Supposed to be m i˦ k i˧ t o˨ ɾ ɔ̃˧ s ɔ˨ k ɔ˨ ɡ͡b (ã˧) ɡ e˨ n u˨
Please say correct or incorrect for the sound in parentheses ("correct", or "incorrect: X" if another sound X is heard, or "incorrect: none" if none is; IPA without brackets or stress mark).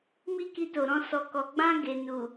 correct